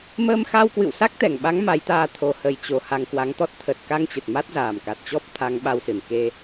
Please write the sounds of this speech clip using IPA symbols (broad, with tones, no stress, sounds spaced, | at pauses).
m əː˧ m x a˧ w k w ɨ̰˧˨ w s a˦˥ k̚ t̪ ɛ˧˩ ŋ ɓ a˨˦ ŋ m a˨˦ j t̪ aː˧ t̪ʰ o˨˩ h ə˧˩ j t͡ɕ o˨˩ h a˧ ŋ k w a˨˦ ŋ t̪ ɔ˦˥ t̚ t̪ʰ ə˨˩ t̚ k a˧ ŋ t͡ɕ ə˨˩ t̚ m a˦˥ t̚ z aː˨˩ m k a˨˩ t̚ t͡ɕ ɔ˦˥ p̚ t̪ʰ a˨˦ ŋ ɓ a˧ w s ɨ˧˩ n k e˧